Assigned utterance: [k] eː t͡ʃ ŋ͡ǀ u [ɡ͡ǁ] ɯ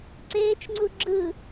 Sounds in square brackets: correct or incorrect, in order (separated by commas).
incorrect, correct